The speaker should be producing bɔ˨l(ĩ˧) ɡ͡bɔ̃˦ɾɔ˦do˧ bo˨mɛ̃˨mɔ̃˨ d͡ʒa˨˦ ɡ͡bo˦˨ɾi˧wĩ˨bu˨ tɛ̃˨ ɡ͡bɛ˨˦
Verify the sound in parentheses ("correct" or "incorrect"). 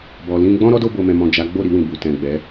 correct